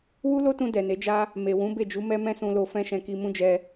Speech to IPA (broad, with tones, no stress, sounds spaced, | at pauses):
w u˦ l o˦ t ũ˧ d ɛ˨ n e˨˦ d͡ʒ a˦ | m e˨ w ũ˨˦ b e˦˨ d͡ʒ u˨˦ m ɛ˦ m ɛ̃˦ s ũ˧ l o˧ f ɛ̃˦ ʃ ɛ̃˧ k i˧ m ũ˦ d͡ʒ ɛ˧